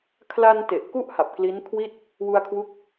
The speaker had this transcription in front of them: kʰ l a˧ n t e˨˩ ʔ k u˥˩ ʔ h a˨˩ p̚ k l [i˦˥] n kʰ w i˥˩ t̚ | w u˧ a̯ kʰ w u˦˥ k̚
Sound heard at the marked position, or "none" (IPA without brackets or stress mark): i˦˥